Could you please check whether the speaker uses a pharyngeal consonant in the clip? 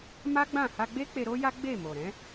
no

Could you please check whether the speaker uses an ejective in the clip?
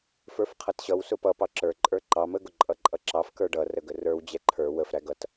yes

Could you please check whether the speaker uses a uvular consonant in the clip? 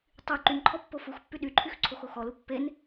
no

